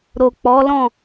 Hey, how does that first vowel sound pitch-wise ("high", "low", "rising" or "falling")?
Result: low